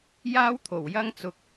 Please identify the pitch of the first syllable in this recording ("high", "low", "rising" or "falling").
high